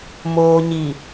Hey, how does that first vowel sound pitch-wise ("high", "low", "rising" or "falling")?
low